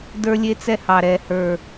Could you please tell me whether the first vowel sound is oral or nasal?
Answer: oral